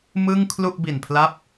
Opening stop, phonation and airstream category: aspirated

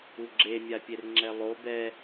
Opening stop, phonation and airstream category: click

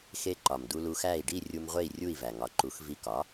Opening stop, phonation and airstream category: click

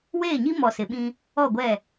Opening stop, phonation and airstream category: implosive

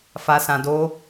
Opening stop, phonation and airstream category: plain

